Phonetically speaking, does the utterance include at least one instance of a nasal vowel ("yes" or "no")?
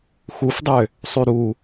no